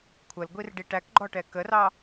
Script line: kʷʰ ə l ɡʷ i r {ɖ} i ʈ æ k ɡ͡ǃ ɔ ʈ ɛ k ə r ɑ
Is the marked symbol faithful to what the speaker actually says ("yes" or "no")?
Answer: yes